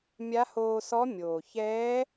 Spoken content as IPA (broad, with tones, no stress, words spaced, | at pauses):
mʲa˧˥hoː˧sɔ˧˥ mʲoː˩çɛː˧˥